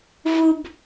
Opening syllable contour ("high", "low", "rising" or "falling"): high